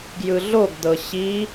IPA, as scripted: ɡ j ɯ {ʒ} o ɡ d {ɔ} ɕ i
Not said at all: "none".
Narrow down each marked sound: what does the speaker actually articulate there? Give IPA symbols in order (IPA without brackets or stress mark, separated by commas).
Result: ɮ, ɤ